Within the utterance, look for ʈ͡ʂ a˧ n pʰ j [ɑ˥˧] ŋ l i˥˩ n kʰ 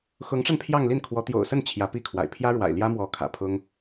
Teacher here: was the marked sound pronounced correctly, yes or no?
yes